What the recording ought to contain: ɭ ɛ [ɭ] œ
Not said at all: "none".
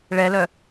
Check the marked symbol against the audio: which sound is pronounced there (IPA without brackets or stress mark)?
l